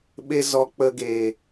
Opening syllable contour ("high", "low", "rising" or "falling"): high